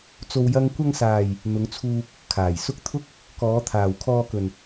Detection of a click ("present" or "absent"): absent